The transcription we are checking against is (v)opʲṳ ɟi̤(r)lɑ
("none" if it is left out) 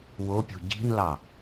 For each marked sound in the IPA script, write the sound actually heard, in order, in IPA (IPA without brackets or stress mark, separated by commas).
w, n